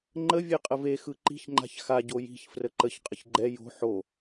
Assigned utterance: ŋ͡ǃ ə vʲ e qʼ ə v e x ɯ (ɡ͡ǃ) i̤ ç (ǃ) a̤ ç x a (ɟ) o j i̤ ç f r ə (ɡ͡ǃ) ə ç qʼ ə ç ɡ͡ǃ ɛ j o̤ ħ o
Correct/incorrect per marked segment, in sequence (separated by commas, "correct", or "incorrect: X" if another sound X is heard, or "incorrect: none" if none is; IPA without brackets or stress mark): incorrect: ǃ, incorrect: ŋ͡ǃ, correct, incorrect: ǃ